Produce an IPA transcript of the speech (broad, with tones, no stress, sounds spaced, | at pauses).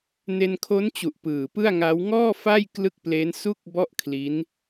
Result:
n e˧ n kʰ o˦˥ n t͡ɕ u˨˩ ʔ p ɯː˨˩ p ɯ˥˩ a̯ ŋ a˦˥ w ŋ ɔː˥˩ f a˥˩ j k l ɯ˥˩ k̚ p l e˦˥ n s u˥˩ k̚ b ɔ˥˩ ʔ kʰ l i˦˥ n